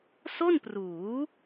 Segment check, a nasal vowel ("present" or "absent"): absent